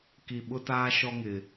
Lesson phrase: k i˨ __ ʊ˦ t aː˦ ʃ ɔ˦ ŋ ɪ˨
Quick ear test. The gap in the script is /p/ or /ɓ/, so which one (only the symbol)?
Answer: ɓ